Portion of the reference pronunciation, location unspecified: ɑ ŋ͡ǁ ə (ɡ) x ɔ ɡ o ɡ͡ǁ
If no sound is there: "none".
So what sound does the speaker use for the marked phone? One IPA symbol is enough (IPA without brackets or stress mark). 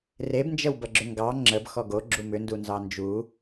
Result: b